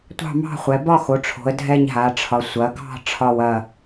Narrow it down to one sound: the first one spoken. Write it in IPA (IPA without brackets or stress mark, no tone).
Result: tʷ